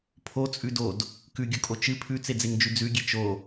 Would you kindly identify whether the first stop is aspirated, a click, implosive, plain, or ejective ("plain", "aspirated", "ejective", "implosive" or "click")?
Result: aspirated